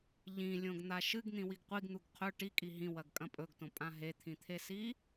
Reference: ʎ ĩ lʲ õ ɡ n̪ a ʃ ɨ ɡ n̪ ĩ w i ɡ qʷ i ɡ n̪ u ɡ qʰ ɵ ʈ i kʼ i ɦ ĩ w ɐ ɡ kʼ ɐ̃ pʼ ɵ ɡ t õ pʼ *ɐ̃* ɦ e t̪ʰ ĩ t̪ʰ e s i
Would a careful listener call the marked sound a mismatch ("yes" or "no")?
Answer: yes